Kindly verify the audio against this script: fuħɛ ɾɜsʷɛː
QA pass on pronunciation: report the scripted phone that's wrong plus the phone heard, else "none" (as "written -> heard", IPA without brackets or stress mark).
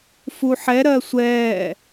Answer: none